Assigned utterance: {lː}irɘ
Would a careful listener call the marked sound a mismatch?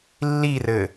no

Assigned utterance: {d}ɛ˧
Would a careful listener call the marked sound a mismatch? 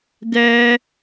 no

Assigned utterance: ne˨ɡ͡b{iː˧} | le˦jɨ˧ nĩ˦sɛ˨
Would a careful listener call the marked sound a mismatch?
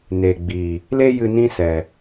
yes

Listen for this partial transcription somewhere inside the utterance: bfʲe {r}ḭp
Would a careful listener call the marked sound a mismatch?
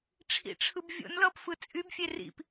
no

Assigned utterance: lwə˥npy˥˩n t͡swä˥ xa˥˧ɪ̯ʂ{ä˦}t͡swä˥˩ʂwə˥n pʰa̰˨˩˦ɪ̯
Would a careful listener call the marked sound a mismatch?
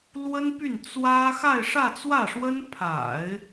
yes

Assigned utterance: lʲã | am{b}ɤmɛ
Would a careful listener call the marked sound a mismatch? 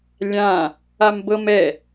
no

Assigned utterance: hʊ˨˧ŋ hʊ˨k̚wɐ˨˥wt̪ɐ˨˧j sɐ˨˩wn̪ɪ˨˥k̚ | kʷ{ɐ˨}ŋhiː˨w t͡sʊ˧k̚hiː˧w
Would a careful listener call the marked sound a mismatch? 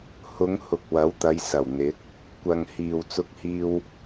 no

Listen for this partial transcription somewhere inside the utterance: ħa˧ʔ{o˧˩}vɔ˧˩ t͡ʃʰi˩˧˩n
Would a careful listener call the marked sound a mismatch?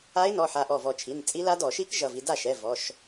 yes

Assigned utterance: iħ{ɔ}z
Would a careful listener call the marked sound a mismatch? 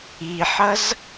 yes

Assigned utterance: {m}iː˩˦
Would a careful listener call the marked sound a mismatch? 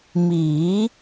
no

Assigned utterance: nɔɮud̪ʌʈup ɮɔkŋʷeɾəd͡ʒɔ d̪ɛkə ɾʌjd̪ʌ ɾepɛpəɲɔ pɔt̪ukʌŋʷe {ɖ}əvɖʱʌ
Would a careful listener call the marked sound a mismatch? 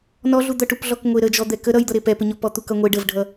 no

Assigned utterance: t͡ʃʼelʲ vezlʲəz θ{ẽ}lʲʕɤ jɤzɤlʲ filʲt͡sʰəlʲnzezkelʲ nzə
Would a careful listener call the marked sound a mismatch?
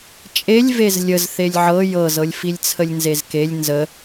yes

